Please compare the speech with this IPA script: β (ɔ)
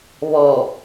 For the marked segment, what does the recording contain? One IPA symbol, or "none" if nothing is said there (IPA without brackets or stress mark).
ɔ